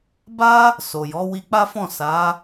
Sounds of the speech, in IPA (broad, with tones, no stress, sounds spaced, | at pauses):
b a˦ | s o˨ j ɔ˨˦ w i˧ k͡p a˦ f ɔ̃˦˨ s a˨˦